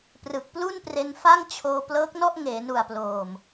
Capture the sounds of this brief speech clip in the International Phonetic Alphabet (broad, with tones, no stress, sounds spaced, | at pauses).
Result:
p r ɯ˨˩ k̚ p l u˥˩ n p r e˧ n f a˥˩ ŋ t͡ɕʰ oː˧ p l ɤː˦˥ k̚ n ɔ˥˩ ʔ ŋ eː˩˦ n u˨˩ a̯ p l oː˨˩ m